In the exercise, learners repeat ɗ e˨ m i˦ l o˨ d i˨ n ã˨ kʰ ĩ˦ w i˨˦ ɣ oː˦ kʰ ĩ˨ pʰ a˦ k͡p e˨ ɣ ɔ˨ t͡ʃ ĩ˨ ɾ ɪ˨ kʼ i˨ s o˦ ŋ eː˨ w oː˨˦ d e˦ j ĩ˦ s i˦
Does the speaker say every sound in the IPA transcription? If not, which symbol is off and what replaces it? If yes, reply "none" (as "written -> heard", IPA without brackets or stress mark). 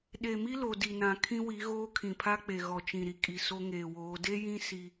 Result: ɪ˨ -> i˨